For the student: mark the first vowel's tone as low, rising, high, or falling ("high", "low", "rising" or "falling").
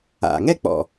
low